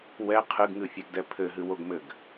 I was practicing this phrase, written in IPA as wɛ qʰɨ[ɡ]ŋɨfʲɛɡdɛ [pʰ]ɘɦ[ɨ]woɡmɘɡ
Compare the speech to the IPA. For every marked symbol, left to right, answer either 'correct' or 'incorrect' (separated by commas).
correct, correct, correct